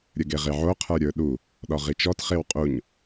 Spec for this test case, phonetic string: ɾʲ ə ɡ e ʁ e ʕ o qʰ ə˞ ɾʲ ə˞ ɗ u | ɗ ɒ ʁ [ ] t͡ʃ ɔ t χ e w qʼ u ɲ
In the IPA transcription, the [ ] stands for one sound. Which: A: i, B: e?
A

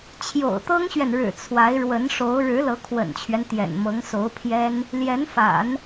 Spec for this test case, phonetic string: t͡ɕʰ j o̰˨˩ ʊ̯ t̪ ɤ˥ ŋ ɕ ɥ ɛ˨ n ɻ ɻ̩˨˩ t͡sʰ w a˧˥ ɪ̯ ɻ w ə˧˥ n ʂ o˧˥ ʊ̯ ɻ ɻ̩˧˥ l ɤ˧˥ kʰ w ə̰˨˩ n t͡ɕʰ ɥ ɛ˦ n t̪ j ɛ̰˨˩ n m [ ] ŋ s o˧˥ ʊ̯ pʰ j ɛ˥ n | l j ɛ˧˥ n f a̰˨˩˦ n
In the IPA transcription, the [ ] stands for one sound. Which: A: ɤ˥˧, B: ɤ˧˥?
B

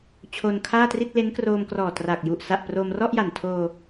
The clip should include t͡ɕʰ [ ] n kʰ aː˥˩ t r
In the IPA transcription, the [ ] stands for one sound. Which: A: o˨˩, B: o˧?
B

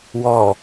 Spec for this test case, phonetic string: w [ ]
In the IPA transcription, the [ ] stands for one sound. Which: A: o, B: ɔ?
B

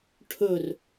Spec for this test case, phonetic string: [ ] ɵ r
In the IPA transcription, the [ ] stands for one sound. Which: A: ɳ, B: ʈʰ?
B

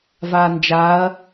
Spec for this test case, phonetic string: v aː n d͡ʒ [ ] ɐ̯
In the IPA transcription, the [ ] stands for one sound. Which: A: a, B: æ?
A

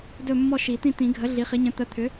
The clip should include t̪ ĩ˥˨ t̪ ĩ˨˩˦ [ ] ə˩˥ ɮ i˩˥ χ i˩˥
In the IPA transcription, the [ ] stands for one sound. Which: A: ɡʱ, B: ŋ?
A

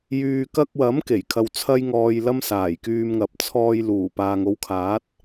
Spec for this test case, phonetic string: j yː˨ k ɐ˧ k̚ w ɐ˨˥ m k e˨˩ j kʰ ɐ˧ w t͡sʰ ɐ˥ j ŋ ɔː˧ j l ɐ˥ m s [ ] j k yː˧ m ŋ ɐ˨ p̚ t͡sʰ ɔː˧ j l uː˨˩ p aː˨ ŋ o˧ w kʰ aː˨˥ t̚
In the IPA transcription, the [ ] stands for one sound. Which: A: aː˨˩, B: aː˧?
A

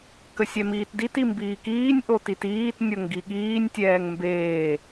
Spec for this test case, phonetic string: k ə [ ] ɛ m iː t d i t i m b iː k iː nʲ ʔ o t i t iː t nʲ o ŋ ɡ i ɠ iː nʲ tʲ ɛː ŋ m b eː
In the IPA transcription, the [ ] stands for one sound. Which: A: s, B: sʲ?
B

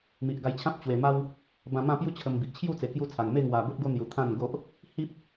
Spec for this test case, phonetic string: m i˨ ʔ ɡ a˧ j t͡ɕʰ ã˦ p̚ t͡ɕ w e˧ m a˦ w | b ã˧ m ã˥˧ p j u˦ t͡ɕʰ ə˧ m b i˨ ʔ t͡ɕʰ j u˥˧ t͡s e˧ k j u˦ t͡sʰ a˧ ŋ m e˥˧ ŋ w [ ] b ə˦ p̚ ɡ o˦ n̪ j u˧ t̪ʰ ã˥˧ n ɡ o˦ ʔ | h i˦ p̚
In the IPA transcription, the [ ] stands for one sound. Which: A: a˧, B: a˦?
A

